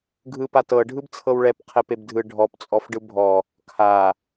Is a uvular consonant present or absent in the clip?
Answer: present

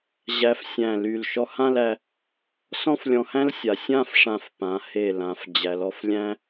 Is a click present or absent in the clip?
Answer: absent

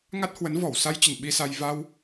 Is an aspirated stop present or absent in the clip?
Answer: absent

